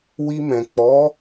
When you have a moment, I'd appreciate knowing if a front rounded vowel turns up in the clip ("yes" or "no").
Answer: no